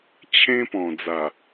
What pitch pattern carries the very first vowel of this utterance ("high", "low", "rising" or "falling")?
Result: high